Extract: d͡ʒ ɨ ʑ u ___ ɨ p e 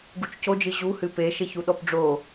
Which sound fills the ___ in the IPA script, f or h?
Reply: h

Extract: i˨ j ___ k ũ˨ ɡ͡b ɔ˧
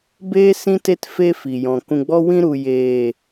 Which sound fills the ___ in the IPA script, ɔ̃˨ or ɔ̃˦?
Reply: ɔ̃˨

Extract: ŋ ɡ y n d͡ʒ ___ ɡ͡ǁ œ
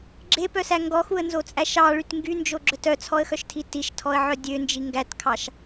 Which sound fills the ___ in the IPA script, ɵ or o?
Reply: o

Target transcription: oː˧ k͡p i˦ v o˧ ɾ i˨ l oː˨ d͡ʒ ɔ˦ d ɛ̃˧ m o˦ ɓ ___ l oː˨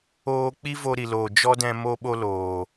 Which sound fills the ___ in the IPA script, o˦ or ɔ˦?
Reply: o˦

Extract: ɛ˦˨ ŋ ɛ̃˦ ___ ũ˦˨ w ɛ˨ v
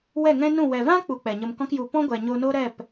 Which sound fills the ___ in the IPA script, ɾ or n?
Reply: n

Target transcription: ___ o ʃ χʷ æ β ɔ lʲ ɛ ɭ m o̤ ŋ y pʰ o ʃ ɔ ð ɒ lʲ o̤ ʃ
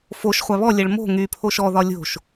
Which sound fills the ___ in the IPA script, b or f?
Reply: f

